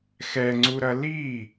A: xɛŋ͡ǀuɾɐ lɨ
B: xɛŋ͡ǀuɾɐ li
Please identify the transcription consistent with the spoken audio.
B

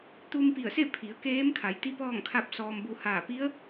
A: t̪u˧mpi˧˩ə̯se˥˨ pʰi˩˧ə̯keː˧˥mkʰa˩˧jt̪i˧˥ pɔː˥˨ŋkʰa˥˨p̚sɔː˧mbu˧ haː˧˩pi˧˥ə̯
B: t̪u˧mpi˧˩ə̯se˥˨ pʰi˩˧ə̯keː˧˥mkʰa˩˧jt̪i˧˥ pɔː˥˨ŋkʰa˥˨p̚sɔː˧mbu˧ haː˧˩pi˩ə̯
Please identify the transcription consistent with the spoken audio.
A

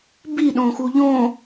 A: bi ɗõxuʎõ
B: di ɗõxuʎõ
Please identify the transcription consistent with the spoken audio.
A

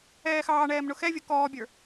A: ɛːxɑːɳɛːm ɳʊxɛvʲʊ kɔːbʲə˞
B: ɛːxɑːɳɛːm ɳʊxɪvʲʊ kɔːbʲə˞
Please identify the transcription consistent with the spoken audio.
A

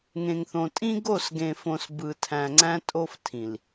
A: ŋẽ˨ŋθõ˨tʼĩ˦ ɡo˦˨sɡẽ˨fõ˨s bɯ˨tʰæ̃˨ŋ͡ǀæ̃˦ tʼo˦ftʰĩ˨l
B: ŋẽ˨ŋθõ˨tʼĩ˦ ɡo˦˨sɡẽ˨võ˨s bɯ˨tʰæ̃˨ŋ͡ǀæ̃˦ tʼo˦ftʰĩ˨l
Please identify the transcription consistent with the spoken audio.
A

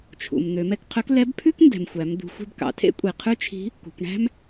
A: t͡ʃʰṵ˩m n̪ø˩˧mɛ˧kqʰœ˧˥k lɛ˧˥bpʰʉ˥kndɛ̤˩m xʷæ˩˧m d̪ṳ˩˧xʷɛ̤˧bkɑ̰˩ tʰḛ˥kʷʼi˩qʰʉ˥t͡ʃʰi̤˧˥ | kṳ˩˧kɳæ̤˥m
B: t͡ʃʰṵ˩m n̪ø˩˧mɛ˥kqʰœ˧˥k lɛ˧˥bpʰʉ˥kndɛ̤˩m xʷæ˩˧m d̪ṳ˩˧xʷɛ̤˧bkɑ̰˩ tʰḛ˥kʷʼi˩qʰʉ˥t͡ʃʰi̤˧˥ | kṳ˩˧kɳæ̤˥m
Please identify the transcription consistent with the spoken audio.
A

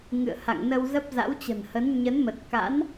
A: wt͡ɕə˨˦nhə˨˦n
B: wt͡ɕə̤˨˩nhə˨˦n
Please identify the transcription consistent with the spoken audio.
B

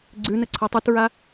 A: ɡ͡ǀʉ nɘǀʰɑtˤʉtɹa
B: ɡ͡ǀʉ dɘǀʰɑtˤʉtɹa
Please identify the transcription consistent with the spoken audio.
A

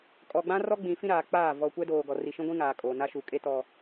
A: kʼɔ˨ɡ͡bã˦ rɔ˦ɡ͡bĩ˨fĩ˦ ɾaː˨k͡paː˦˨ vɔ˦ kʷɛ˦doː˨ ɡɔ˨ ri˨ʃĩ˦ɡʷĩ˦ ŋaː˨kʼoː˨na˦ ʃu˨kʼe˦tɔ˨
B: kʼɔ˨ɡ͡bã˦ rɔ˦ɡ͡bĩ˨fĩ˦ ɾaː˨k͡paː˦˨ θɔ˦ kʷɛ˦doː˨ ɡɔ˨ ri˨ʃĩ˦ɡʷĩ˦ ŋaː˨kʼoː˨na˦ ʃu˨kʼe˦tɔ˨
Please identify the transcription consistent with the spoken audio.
A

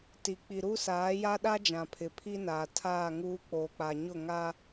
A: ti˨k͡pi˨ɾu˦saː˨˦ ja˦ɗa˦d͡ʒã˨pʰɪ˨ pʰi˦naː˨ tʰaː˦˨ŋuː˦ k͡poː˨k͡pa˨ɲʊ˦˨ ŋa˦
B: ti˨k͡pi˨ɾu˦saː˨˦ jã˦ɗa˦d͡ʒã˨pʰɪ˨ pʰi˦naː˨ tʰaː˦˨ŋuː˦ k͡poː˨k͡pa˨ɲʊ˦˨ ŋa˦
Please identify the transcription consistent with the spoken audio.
A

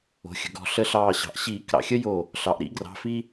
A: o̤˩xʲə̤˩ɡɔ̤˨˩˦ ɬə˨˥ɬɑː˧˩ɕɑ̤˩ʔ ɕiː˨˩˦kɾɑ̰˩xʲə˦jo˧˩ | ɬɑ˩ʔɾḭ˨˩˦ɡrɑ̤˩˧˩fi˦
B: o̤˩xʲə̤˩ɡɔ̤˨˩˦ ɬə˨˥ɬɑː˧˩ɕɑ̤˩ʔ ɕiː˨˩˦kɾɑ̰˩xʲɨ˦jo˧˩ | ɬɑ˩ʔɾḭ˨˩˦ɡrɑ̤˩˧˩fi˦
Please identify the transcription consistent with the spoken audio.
A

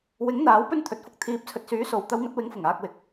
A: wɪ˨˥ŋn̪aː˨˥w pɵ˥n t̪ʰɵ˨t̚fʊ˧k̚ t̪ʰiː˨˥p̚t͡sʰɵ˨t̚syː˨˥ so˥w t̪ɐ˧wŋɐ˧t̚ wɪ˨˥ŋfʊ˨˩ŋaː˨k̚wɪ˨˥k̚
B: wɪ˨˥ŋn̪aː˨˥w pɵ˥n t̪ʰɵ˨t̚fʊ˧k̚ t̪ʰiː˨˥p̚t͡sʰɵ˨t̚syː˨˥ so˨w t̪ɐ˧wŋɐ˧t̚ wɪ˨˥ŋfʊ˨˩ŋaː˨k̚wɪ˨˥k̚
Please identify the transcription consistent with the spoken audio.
B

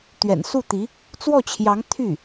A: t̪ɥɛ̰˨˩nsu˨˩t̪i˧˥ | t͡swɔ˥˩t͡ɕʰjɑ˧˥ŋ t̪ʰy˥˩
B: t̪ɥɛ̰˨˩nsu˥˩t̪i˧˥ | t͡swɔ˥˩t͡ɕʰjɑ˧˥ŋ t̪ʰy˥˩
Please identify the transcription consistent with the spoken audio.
B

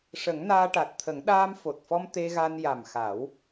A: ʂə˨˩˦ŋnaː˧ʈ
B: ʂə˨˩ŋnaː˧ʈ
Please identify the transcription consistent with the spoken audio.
A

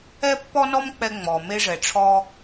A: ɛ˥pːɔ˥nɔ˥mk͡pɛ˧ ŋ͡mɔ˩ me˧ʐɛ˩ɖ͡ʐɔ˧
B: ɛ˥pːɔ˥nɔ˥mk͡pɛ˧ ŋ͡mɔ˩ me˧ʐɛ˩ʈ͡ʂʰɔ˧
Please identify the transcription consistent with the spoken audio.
B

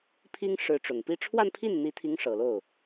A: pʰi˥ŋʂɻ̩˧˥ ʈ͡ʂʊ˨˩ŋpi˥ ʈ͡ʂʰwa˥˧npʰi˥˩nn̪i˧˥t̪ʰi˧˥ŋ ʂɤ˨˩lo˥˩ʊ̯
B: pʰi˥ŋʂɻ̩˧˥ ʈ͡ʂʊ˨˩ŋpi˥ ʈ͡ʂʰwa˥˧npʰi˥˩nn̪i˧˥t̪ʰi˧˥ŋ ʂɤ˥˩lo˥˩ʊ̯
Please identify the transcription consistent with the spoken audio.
A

